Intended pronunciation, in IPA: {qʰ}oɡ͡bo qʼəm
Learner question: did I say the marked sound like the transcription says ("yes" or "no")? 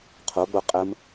yes